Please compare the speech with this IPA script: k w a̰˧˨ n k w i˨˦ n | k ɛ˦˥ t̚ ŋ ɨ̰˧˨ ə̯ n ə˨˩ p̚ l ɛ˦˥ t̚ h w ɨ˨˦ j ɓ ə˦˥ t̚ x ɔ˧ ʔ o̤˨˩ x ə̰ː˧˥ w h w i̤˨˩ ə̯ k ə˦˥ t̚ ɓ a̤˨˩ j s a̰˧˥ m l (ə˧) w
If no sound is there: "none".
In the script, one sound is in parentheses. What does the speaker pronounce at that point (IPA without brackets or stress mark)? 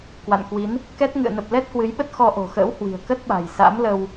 ə˧